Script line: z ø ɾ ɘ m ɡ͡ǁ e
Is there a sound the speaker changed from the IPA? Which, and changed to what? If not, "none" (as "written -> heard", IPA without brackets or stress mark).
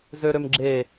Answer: ɘ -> ø